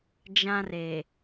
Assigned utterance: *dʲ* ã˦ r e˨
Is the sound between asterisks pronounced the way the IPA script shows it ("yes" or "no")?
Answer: no